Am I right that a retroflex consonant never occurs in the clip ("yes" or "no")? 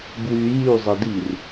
yes